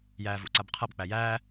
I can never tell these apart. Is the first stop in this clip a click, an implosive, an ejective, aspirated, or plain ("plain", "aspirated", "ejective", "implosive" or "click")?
click